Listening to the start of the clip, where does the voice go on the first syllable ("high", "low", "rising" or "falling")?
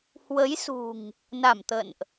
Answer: rising